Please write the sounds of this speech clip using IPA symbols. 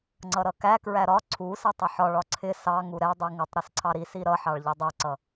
ŋ͡ǀʌɾʌkæ kɹæɾɒ ǀʰusɪ tˤəħɒɭ ɒǀʰɪ sɑ ŋuɾɛ dˤiŋətˤɾɪsǀʰɑ ɾisi ɾʌħɑɭ ʎɛdˤɛǀʌ

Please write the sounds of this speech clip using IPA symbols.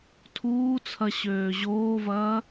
tʰuːt͡sʰɐ ɕøːʑoːvɐː

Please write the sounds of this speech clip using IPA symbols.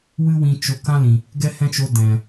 wɨ˦wĩ˧t͡ʃo˧ kã˦lĩ˨ | ɡɛ˦hɛ̃˦t͡ʃo˧ dɛ̃˨

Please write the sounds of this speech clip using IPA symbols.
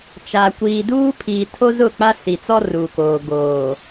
t͡ʃa˨ kʷiː˨duː˦pʰiː˨tʰo˦ zʊ˦˨k͡pa˦ si˨t͡sɔ˦ ruː˨koː˨ ɡoː˨

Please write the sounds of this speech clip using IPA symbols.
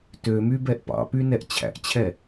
tømy bɛʔpɑ̰py nɛʔt͡ɕʰæ̰ʔt͡ɕʰɛ

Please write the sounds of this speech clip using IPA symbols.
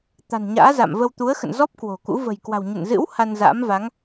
t̪a̤˨˩nɲa̰ː˧˥za̰˧˨mvə˧w t̪u˨˦ə̯xə̰˧˨nzɔ˦˥p̚ kwo̤˨˩kṵ˧˥ və̤˨˩jkwa̤˨˩wɲə̰˧˨n zɨ̰˧˥w ha˧nza̰ː˧˥mva˨˦ŋ

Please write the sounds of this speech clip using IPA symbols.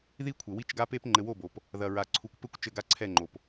ði˦kʷʰɘ˨ wi˦t͡ʃɡa˦pe˦p ŋ͡ǃɘ˨wo˦˨bo˨p | ðɐ˨ɹa˨ ǀʰu˨kʷpɘ˦kʷ t͡ʃɘ˦˨ɡa˦ǀʰɛ˦˨ŋ͡ǃo˨p

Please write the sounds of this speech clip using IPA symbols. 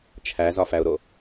t͡ʃʰæzɒfæʊ̯ɾo

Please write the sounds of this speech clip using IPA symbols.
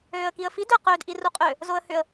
øːə̯kiə̯fid ʏə̯qøːd ʔiruqʼø | zoə̯hʏə̯

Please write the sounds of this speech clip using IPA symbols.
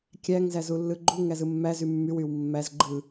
kʲæŋzæ zulːɯɡ͡ǃu ŋæzɯmːæzy mːyw ywmːæz ɡ͡ǃɯ

